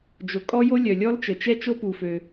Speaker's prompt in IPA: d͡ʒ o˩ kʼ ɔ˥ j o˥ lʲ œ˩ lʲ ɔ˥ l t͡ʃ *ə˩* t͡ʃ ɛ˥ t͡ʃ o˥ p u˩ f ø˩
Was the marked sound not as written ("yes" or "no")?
no